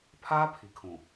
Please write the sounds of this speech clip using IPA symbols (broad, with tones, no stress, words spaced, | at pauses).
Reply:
pʰaː˦ pʰi˨kʰũ˨